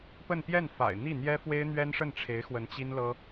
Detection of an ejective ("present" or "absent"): absent